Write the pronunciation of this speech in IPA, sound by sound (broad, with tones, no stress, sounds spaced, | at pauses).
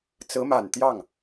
t͡s ɹ̩˧˥ m a˨˩ n t̪ j ɑ˥˩ ŋ